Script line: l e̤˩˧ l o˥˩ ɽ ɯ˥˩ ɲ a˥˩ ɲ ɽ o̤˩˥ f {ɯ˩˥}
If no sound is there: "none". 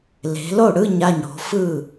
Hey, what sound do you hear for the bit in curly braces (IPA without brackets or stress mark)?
ɯ˥˩